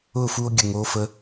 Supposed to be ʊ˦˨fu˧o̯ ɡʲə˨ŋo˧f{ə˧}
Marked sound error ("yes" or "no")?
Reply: no